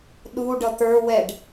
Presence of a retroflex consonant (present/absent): present